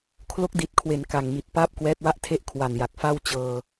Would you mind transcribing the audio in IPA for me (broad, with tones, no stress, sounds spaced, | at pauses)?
kʰ l o˦˥ k̚ d i˨˩ t̚ kʰ w e˩˦ n k a˨˩ ŋ m i˨˩ t̚ p aː˥˩ p̚ k w ɛː˦˥ t̚ w a˥˩ ʔ tʰ e˥˩ ʔ kʰ w a˨˩ n j a˨˩ k̚ f a˥˩ w t͡ɕ ɤː˧